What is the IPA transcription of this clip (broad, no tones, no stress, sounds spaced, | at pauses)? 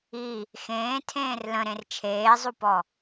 i | x ẽː tʰ ẽː r l ə̃ ɾ ẽ r t͡ʃʰ eː zˤ u p ɔ